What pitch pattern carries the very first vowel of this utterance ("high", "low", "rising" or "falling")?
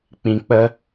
low